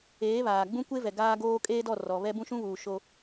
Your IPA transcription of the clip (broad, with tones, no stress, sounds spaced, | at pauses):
eː˨˦ β aː˨ ɡ͡b ũ˦ kʷ e˦ v ɛ˨ ɡ aː˦ ɡ oː˦ kʼ eː˦ d ɔ˦˨ r ɔ˨ β ɛ˦ b ũ˦ ʃ ũ˦ β uː˨ ʃ o˦